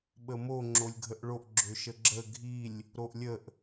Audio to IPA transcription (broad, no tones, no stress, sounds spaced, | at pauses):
ɓ ə m o ŋ͡ǁ o lʲ ɡʱ ə ʔ ɭ o ʔ ɡ͡ǁ ø ʃ ə ɡ͡ǁ ə ɡʱ i lʲ | ɾ o ʔ lʲ ə ʔ